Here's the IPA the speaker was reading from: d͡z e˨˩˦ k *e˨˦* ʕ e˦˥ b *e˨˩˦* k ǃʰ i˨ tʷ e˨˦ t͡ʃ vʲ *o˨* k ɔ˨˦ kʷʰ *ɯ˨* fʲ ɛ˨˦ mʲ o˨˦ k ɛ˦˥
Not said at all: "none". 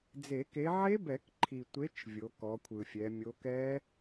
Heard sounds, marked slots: e˨˦, ɛ˨˩˦, o˨˦, ɯ˨

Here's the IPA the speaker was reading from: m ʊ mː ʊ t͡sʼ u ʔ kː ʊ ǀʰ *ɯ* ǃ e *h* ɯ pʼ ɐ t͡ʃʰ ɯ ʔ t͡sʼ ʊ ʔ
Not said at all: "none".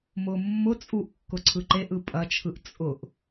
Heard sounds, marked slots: ɯ, ʔ

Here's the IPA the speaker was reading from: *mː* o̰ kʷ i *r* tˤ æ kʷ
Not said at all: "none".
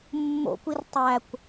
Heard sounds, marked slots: mː, r

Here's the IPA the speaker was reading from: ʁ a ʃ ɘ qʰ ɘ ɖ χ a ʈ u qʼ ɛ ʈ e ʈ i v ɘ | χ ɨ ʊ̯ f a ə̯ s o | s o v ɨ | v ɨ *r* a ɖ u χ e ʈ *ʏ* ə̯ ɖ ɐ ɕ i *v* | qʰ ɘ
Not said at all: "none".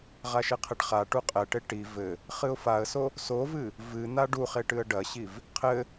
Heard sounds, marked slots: n̪, ɨ, v

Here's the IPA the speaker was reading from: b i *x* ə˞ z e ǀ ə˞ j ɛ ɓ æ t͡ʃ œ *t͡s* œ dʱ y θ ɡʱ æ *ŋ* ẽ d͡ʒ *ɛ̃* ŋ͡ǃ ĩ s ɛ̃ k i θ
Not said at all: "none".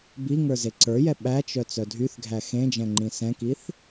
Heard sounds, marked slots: ŋ, t͡s, x, ɛ̃

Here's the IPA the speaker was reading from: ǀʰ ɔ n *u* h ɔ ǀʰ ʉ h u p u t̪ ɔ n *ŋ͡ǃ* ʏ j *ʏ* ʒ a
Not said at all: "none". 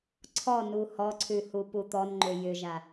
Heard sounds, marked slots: u, ŋ͡ǃ, ʏ

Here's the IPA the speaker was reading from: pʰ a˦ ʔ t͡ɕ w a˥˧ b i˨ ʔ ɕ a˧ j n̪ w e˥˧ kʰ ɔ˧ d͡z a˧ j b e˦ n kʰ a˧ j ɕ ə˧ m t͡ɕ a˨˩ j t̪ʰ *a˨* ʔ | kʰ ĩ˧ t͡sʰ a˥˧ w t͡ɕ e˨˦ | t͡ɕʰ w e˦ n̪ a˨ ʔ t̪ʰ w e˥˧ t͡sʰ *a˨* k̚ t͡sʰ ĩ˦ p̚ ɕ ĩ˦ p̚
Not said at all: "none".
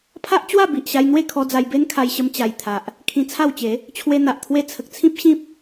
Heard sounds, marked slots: a˨, ə˨

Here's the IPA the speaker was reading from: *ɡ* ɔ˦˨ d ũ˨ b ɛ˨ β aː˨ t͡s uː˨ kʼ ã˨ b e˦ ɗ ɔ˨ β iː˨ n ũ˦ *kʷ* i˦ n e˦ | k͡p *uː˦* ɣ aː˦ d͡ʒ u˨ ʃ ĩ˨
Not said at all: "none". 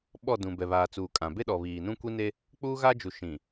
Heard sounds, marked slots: ɓ, kʷ, uː˦

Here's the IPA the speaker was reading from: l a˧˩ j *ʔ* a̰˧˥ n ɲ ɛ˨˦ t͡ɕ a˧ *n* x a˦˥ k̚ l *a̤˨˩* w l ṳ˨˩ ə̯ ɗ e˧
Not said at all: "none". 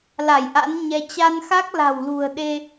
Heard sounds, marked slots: ʔ, n, a̤˨˩

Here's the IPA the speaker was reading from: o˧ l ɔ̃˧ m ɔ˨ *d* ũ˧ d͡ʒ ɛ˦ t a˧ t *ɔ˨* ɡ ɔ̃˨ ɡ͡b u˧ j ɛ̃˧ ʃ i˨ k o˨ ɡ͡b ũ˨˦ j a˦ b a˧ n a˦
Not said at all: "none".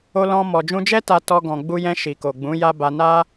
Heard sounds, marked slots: d͡ʒ, ɔ˧

